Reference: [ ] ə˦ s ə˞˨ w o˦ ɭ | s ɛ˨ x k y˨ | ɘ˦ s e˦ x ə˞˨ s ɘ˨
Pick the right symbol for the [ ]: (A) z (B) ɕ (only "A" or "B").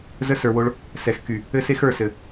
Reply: A